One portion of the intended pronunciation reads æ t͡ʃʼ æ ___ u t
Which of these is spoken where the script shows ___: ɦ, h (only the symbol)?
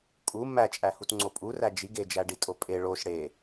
h